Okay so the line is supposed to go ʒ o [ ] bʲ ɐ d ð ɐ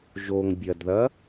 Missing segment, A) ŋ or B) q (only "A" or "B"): A